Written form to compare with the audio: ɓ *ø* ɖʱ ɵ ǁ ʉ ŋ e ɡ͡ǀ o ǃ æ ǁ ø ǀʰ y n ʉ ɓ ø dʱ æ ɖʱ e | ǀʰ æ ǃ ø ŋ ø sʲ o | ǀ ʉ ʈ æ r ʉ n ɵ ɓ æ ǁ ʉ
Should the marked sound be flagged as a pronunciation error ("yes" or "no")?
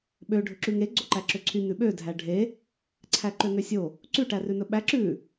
no